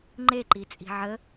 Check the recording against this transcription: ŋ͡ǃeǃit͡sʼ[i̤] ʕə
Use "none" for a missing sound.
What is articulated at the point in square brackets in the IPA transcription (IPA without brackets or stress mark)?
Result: i̤